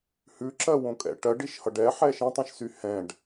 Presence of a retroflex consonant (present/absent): present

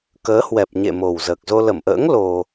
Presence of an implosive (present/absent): absent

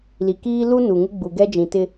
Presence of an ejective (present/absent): absent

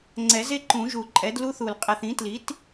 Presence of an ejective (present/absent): present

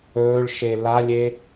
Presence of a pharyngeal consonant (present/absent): absent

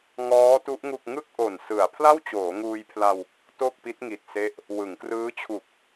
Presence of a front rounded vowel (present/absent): absent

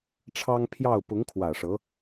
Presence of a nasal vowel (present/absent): absent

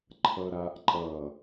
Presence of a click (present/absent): present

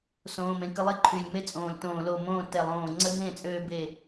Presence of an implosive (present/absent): absent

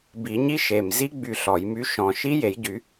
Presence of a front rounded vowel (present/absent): present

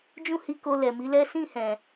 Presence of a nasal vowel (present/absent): present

